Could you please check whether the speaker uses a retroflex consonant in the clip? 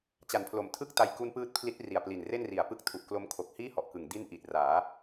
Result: no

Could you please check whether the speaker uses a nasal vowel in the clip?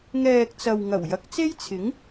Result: no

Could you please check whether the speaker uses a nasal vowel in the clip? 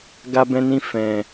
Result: yes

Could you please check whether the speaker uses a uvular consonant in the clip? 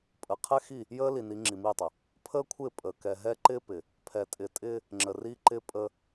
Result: yes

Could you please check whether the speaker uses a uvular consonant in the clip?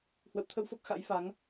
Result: no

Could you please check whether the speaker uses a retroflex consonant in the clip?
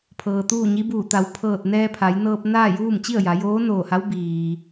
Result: no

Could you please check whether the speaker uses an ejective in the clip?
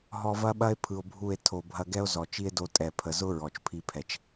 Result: yes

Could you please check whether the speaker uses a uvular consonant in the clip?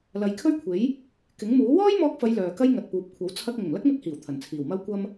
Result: no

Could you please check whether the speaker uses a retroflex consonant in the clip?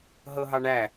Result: yes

